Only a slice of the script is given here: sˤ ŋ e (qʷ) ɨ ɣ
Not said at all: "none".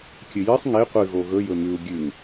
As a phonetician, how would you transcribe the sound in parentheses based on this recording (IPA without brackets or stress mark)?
qʷ